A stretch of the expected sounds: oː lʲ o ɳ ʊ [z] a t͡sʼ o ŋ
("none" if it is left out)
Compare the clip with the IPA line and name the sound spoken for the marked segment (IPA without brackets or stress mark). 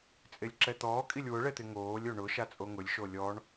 ʃ